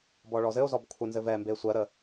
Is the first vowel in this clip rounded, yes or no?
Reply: yes